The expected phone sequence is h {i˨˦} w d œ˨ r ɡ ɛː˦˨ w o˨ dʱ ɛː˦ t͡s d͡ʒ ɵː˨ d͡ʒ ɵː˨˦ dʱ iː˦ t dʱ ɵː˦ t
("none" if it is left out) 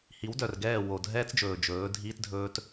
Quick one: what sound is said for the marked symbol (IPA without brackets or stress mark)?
i˨˦